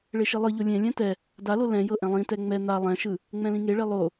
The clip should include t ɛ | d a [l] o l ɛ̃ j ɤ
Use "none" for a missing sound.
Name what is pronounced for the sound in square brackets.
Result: l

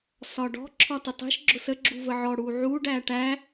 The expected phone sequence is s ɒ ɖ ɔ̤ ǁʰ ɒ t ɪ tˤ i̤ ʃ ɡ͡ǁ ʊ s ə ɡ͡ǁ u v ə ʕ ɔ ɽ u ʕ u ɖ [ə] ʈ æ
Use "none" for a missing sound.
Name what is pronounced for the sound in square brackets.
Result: æ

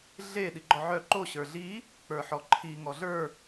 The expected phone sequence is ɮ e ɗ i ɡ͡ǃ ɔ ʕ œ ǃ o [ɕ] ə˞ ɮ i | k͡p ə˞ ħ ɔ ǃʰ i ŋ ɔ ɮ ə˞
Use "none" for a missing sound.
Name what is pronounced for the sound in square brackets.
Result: ɕ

